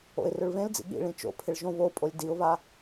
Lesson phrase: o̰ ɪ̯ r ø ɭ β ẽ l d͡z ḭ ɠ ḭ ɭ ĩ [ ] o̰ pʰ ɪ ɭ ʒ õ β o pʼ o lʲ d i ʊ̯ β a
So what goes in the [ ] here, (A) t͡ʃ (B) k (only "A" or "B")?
A